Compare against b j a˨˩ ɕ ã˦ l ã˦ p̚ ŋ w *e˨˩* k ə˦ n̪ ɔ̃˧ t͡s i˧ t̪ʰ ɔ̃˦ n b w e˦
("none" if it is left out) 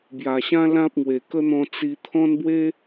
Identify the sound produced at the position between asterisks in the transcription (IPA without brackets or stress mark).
e˨˩